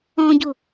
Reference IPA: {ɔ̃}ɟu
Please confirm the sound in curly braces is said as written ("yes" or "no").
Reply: yes